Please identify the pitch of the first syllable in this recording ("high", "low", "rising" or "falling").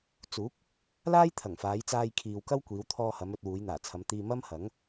rising